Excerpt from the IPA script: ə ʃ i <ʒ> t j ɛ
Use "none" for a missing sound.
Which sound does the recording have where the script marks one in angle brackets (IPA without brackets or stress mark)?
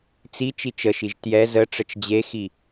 ʒ